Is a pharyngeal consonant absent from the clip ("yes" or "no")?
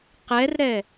yes